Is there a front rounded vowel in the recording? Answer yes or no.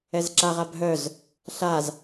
yes